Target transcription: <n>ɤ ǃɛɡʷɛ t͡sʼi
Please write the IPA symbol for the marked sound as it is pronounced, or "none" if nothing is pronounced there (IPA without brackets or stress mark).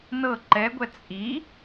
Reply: n